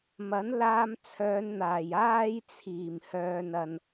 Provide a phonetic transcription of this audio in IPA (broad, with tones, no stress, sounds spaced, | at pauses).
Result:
m ɐ˨˥ n l aː˧ m t͡sʰ œː˨˧ n n̪ aː˨˩ j aː˥ j t͡sʰ iː˨˩ m h œː˧ n ɐ˧ n